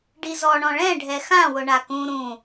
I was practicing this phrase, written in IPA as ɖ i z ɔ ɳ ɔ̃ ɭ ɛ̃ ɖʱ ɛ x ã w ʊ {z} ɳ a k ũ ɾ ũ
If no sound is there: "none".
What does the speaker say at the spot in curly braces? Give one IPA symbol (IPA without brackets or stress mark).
none